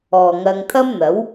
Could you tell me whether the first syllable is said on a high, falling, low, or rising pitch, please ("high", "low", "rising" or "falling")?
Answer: low